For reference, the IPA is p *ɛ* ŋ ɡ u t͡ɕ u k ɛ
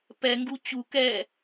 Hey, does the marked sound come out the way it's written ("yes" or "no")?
yes